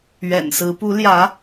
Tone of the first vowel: low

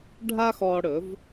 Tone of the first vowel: high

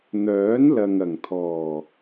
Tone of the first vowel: rising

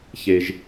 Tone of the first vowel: low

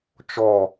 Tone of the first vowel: falling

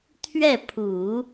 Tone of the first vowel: falling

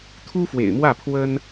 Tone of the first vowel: high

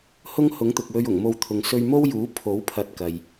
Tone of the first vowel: high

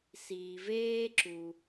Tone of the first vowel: low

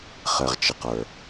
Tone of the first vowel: low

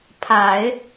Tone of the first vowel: low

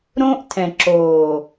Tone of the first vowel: high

